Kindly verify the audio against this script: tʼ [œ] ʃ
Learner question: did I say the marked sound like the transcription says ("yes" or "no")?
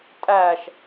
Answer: no